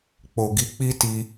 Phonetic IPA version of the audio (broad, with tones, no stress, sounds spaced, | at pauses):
k͡p o˨ ɡ i˨˦ k͡p i˦ t i˧